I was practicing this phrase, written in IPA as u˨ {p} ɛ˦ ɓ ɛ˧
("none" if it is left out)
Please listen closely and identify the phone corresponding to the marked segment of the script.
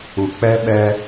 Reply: k͡p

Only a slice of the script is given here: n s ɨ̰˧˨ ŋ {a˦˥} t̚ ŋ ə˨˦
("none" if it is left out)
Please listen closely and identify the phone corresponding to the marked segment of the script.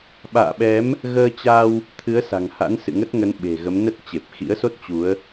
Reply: ə˦˥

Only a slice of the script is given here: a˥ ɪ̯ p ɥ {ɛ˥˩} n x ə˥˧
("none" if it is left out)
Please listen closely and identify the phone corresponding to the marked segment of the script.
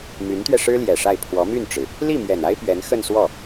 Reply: ɛ˧˥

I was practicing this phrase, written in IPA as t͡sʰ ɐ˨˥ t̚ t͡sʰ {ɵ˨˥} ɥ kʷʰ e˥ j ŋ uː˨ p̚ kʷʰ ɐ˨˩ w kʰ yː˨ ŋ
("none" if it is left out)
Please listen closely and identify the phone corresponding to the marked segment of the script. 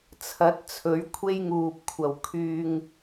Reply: ɵ˨˥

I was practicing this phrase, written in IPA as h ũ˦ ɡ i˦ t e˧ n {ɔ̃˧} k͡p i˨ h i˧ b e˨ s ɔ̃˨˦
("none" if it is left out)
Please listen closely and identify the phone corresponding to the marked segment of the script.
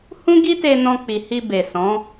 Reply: ɔ̃˧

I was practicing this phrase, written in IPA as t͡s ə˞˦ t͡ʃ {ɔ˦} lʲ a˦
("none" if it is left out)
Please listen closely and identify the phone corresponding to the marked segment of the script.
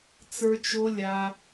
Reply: o˦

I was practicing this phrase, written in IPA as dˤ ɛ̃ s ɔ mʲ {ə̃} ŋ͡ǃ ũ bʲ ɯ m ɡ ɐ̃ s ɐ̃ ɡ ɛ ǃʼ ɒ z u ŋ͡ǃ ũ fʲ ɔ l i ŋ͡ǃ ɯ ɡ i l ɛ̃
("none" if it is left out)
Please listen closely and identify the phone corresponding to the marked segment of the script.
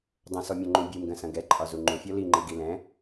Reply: ɔ̃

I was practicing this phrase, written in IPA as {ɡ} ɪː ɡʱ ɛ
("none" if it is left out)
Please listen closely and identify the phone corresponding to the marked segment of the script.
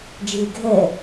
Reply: d͡ʒ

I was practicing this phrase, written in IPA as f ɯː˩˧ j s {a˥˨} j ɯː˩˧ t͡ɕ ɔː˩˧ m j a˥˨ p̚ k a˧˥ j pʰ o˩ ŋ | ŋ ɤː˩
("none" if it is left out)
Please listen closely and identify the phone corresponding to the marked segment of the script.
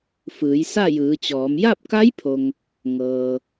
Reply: a˥˨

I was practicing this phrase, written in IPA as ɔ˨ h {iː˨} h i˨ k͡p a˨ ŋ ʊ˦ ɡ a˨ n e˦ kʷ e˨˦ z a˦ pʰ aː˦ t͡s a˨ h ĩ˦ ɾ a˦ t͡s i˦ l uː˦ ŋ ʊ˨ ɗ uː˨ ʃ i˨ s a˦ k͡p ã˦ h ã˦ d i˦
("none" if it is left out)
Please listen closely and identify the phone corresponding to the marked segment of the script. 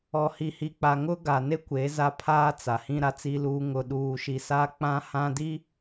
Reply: i˨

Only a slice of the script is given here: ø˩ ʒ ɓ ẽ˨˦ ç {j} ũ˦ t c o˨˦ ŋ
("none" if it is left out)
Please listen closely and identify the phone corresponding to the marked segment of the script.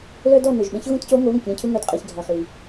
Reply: ɣ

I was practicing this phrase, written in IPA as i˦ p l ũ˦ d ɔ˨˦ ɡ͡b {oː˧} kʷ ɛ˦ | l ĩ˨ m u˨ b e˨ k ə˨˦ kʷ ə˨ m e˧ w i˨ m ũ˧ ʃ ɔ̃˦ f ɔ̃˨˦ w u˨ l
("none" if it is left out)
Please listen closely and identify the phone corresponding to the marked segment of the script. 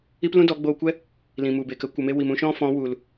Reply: oː˧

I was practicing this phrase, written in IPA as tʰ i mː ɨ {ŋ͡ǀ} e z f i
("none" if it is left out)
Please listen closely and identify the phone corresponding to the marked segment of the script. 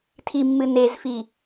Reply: n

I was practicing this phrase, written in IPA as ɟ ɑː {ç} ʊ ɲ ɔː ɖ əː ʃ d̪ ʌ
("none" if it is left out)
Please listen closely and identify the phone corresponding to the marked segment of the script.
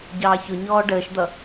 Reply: ç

